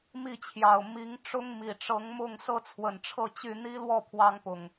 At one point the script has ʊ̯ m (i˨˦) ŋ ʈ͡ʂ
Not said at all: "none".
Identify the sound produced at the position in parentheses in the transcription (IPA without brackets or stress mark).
i˨˦